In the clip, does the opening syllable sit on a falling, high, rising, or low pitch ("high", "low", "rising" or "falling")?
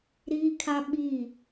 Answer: high